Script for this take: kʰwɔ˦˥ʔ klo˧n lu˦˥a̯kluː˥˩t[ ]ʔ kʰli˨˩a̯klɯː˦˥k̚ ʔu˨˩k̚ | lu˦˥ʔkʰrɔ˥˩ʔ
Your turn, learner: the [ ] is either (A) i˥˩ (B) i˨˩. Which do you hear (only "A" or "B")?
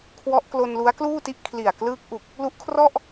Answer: A